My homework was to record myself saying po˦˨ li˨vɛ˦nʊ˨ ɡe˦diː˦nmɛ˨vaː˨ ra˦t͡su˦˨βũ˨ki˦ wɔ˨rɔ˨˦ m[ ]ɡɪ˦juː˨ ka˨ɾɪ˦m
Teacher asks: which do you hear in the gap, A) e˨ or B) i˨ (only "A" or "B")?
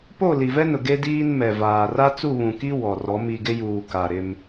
B